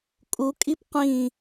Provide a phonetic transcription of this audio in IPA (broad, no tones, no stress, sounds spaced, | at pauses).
kʼ u kʼ i p qʷ ĩ